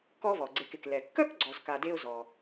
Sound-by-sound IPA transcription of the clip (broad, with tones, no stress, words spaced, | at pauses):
kɔ˦vɔ˩ɡ͡ǀe˨k ɪ˩k lɛ˩kːœ˥k ɡ͡ǀɔ˨zka˨ de˥ʊ̯zɔ˨